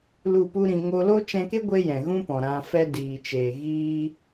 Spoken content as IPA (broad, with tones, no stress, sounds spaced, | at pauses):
l u˦˨ p u˦ ɾ ĩ˧ ŋ o˧ l o˦ t͡ʃ ɛ̃˧ k e˦ ɡʷ e˦ j ɛ̃˨ ɣ ũ˦ p ɔ̃˨ ɾ ã˧ f ɛ˧ d iː˨ t͡ʃ eː˨ ɣ iː˦